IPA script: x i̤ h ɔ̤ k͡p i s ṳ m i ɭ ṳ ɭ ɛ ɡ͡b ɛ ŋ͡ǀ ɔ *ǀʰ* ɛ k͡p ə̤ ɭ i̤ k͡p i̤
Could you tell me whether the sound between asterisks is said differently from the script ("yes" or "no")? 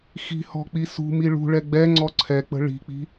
no